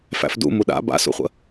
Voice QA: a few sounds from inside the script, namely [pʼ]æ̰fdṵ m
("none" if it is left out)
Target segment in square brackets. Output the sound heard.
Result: f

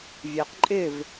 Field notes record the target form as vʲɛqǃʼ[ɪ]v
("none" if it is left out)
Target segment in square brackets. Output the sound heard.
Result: ɪ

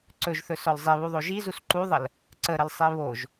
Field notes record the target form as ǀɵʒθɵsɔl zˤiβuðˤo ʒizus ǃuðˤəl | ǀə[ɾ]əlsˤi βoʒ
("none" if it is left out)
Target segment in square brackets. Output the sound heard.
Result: ɾ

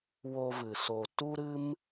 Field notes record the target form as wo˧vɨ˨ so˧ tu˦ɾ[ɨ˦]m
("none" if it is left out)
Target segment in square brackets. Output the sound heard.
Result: ɨ˦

